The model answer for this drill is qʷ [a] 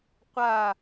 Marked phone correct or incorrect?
correct